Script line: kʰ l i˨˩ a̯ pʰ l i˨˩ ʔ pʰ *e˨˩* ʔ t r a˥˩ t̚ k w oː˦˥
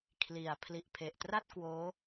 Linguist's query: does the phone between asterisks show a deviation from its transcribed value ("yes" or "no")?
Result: no